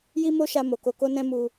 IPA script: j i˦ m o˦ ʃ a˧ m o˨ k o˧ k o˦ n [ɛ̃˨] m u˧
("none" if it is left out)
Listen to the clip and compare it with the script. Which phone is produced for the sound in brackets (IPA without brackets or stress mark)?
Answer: ɛ̃˦